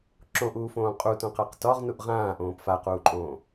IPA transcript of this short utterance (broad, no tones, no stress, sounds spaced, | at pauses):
ǁ õ ʔ uː f õː qʼ u t õ q a q t ɒ ʁ n u ʔ ʁ ãː ʔ õː p f a q uː ǃʼ õː